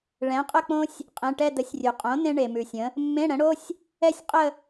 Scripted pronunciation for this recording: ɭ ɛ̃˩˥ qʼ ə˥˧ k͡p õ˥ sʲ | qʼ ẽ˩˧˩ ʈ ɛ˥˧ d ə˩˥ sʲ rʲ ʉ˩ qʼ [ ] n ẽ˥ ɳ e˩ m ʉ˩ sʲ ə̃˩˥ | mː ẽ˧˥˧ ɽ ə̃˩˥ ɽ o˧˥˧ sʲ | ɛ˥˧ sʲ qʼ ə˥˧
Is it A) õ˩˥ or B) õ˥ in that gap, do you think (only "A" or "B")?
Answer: A